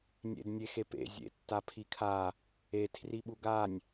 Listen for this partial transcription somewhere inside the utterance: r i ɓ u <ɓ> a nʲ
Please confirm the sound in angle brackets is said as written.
no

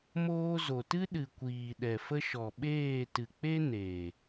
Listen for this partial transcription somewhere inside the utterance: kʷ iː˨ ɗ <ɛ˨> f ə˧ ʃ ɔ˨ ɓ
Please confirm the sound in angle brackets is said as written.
yes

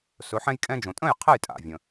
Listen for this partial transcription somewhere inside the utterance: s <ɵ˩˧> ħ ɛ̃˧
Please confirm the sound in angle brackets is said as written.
yes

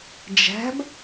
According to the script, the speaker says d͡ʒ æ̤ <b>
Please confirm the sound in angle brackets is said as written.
yes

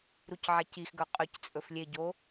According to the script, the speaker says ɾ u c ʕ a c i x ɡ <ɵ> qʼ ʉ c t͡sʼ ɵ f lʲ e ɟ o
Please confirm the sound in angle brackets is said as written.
yes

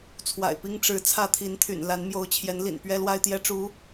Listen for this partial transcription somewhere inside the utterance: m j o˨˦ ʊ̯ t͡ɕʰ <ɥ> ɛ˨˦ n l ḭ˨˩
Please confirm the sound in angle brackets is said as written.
no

